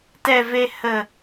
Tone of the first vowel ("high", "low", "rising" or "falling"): low